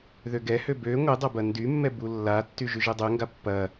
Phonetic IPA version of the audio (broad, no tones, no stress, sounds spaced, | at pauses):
ð ø ɡ ɛ h ø b ø ŋʷ e dˤ ɐ b ɐ n d y mː ɛ b u lː a tː y ʒ y ʒ ɛ dˤ ø ŋ ɡ a pː ɐ